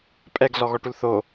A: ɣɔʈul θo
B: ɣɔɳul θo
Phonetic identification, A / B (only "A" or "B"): A